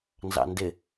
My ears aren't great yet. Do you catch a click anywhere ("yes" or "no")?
no